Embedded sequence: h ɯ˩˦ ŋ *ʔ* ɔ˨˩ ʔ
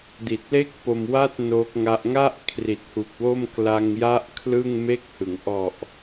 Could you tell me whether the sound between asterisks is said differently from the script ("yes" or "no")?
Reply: no